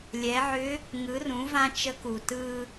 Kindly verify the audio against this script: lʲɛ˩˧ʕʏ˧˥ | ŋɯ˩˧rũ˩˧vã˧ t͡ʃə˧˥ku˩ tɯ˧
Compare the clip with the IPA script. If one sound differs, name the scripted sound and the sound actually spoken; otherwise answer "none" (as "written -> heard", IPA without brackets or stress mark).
none